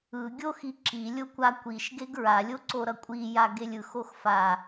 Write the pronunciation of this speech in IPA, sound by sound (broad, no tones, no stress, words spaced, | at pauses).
ɯ ɡʲoxi ǁilʲo kʷakʷiʃ ɡeɡɹalʲo ǀoɾʌkʷʼija ɡelʲɯxox fa